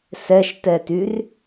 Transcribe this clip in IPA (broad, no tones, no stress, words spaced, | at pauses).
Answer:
sɛʃtɛtyr